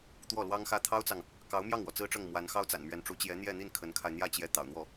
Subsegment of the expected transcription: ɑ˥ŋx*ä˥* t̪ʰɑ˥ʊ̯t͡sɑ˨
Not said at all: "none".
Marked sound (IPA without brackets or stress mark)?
ä˥